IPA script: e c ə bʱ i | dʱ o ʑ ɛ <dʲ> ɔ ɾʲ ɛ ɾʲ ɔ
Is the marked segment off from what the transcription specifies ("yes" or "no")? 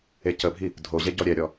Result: yes